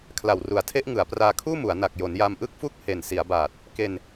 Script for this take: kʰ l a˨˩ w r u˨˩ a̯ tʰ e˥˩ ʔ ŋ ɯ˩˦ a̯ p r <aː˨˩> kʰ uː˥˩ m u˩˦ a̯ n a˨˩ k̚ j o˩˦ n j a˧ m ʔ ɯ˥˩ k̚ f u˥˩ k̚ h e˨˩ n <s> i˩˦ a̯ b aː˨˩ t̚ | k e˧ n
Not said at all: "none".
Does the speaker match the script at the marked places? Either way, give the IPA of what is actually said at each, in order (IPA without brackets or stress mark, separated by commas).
aː˧, s